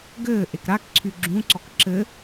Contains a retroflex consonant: no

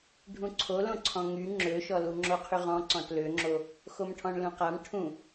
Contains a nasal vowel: yes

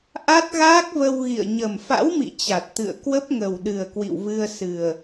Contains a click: no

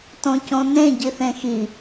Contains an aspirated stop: no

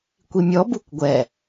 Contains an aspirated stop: no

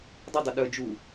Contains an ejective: no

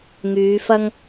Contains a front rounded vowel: yes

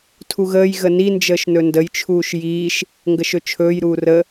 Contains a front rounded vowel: no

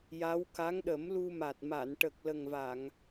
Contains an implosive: yes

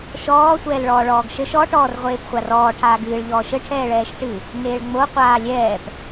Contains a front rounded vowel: no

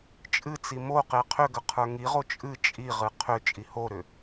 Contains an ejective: yes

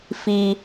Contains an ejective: no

